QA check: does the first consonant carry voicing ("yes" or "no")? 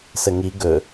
no